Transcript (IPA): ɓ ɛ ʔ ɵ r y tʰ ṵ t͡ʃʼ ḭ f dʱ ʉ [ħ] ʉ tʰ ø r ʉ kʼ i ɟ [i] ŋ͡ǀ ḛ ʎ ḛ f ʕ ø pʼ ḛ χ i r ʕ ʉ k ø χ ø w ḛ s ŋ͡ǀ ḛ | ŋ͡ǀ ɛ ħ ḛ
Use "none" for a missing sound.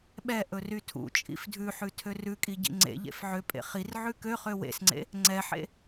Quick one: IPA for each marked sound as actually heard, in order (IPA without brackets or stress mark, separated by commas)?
ħ, ḭ